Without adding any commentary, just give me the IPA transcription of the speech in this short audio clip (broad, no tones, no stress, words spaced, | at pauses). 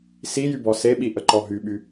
sijybɔ seɓiʔəǃɔ ɦyɓy